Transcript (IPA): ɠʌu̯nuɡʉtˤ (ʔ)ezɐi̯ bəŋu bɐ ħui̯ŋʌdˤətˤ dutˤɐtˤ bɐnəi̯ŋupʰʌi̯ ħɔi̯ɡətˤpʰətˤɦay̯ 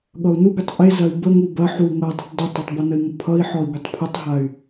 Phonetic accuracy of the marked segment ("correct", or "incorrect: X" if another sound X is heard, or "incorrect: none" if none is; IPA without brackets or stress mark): correct